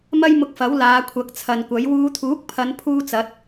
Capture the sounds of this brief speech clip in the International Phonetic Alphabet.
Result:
m ɐ˥ j m ʊ˧ k̚ f ɐ˨˥ w l aː˨˧ kʷʰ ɐ˨˥ k̚ t͡sʰ ɐ˨ n kʷ ɐ˨˥ j w uː˨˧ t̪ʰ uː˨˥ k̚ pʰ ɐ˨˧ n pʰ uː˥ t͡s ɐ˨˥ t̚

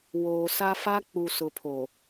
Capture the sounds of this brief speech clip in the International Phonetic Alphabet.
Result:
w oː˨ s a˦ f a˦ k͡p u˨ s ʊ˨ pʰ o˨

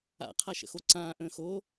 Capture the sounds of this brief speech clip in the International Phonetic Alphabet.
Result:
a̰ qʰ a ʃ ə̰ x o ǀ ãː ʔ ə̃ː x o

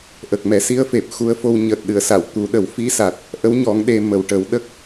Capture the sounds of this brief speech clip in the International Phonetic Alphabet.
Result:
ʔ ə˨˩ k̚ m ɛ˨˩˦ s i˧˥ ə̯ f e˨˩ p̚ x u˧˥ ə̯ f o˧ w ɲ əː˨˩ t̚ ɗ ɨ˨˩˨ ə̯ s a˨˩˨ w t̪ u˨˩˦ ɗ ə˨˩˦ w f i˧˥ s a˨˩ t̚ | ʔ ə˧˥ w ɲ ɔ˨˩˦ ŋ ɗ e˧ m ə˨˩ w ʈ ə˨˩˦ w ɗ ə˦˥ k̚

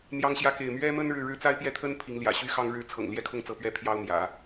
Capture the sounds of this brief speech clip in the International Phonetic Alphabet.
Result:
n̪ j ɑ˥ ŋ ɕ j ä˥ k e˥˩ ɪ̯ m ɥ ɛ˥ m ə˥ n ɻ ɻ̩˥˧ ɻ ɻ̩˥˩ t͡s a˥ ɪ̯ p j ɛ˥˩ t̪ʰ ə˥ n pʰ i˧˥ ŋ l j ä̰˨˩ ɕ y˥ x ɑ˥ ŋ ɻ ɻ̩˥ t͡sʰ ɤ̰˨˩ ŋ l j ɛ˥˧ kʰ ʊ˥˧ ŋ t͡s ɤ˥˩ p ɥ ɛ˥ pʰ j ɑ˥ ʊ̯ m j ä̰˨˩˦

